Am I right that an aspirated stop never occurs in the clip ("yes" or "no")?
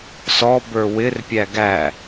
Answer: yes